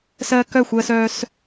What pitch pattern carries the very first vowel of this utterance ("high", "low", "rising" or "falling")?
high